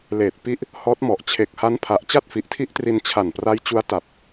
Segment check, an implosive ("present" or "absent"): absent